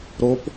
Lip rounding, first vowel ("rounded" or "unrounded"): rounded